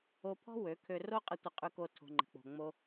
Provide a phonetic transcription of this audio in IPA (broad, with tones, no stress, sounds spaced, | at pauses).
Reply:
o˧ pʰ ɔ̤˦ w ø˨˦ kʰ ø˧ r o˦ qʼ ə˧ tʷ ə˧ qʼ ʉ˧ k o˧ tʰ o̤˨ ŋ͡ǃ ə̤˨ k͡p o̤˨ ŋ͡m o˧